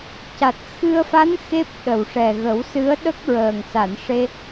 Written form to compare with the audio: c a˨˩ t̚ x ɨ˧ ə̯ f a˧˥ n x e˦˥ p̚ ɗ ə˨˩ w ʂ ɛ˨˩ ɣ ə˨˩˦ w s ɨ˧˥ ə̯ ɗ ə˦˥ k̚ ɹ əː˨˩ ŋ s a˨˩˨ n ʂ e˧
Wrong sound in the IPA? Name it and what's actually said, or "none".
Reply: none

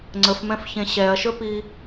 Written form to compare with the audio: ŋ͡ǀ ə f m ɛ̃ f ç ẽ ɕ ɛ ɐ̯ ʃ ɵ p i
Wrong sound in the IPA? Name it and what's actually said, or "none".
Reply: none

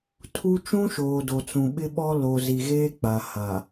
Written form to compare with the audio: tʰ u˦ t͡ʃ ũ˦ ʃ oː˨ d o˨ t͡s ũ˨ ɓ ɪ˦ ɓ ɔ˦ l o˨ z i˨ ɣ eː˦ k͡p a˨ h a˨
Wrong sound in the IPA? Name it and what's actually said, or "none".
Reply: none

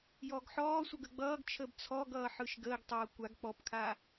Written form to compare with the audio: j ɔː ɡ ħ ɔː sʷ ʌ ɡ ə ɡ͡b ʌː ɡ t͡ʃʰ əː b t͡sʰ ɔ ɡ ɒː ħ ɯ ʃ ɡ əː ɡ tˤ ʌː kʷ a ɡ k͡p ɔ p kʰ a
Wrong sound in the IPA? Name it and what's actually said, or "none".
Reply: ɒː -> ʌː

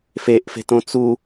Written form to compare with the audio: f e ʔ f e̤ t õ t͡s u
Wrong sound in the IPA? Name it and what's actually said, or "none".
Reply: none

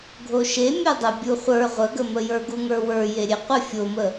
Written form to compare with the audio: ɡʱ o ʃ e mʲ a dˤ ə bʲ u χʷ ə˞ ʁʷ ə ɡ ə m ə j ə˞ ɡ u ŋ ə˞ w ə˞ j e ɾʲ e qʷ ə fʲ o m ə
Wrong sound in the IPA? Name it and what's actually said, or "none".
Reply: none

